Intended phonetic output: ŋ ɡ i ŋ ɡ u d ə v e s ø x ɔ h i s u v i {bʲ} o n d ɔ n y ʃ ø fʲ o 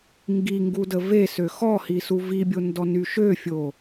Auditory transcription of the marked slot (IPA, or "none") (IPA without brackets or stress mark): bʲ